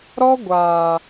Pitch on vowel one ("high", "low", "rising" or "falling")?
high